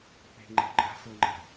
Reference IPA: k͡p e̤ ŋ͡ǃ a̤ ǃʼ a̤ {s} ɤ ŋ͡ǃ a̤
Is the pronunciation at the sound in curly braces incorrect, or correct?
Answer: correct